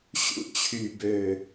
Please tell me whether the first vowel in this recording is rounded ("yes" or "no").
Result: yes